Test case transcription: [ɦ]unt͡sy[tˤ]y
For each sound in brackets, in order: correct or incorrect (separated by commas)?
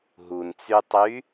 correct, correct